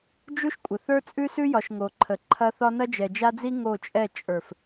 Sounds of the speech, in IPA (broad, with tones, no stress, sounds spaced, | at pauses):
d͡ʒ u˦ ʃ kʷʼ ə˨ θ ə˞˦ t͡sʼ ʉ˦ s ʉ˦ j ɒ˨ ʃ ŋ o˨ ǃʰ ə˨ ǃʰ ɐ˦ θ ɒ˦ n ɐ˦ d͡ʒ ɛ˨ d͡ʒ a˦ d͡z i˦ ŋ o˦˨ t͡ʃʼ ɛ˦˨ t͡ʃʼ ə˞˨ f